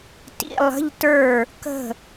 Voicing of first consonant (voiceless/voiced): voiceless